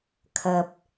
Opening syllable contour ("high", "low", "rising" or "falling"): low